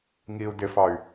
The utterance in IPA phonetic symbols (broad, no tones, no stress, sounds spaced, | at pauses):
ŋ i u̯ d ɪ f ɑ y̯